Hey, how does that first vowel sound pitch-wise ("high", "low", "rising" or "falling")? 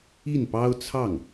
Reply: falling